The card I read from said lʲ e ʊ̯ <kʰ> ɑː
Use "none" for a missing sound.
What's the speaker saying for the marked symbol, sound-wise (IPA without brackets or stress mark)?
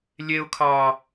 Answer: kʰ